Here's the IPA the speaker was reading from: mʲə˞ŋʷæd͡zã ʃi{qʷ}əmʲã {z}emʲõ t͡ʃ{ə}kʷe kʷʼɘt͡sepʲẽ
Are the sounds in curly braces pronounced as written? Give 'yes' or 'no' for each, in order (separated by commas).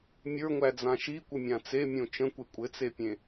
no, no, no